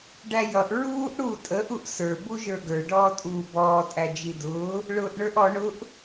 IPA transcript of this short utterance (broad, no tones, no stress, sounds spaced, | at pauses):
ɖ æ j ʌ ʔ ɹ uː ʔ ɽ uː tʼ ə ʔ u ʔ s ə˞ b u ʒ ə˞ ɡ ə˞ ɖ ɔː tʼ uː b ɔː tʼ æ d͡ʒ i d ʊː | ɭ ʊː ʔ ɳ ə˞ ʔ ɔ ɳ ʊ ʔ